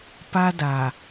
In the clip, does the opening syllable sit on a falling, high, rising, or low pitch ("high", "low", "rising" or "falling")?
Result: high